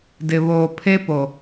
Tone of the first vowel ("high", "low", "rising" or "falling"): low